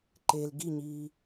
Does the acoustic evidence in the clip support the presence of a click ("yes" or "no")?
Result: yes